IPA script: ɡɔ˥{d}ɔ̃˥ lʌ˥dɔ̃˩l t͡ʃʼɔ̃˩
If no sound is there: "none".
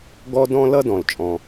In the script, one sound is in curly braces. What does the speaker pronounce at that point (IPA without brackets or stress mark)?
d